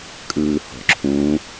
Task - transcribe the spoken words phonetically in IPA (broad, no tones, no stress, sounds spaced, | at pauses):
kʼ ɯː h ɔ̤ ǁʰ ũ